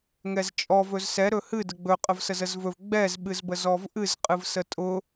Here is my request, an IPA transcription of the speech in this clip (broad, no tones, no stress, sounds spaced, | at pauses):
ŋ ɛ z t͡ʃʼ ɔ v ɵ z s ɛ ɾ ɵ h ɨ d ə ɡ͡b ɵ qʼ ə v s ə z ə z v ɵ v ɡ͡b ɛ z ɓ ɨ z b ə z ɔ v ʔ ɨ z qʼ ɨ v s ə tʼ ʊ